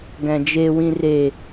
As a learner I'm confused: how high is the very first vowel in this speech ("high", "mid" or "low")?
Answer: low